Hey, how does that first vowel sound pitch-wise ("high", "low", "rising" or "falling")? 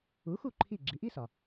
rising